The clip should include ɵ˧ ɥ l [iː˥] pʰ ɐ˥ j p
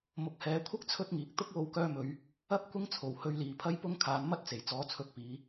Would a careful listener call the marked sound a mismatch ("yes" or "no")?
yes